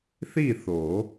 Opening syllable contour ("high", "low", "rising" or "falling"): falling